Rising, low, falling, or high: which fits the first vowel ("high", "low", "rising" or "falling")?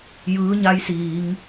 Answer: rising